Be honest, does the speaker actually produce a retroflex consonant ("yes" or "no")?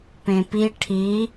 yes